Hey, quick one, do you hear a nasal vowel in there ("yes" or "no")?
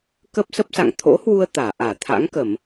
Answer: no